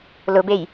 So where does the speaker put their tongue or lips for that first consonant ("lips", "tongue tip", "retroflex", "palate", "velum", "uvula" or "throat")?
tongue tip